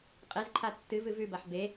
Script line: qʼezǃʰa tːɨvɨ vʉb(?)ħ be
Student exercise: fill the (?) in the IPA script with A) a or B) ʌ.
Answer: A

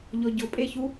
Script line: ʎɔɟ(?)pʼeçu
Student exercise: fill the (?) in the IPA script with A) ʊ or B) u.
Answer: A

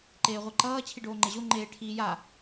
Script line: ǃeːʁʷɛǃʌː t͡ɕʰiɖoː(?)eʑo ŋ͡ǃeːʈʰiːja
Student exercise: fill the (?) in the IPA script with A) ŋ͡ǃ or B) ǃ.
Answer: A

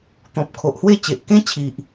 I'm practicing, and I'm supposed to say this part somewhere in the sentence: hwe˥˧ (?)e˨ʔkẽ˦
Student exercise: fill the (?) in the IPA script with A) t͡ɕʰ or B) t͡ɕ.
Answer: B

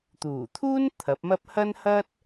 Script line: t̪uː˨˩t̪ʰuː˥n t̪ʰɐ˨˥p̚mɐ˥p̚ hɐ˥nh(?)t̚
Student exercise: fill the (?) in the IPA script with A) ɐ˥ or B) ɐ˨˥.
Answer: A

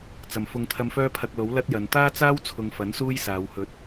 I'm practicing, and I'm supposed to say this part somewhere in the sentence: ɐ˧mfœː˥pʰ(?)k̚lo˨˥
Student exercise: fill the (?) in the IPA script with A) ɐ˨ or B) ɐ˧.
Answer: B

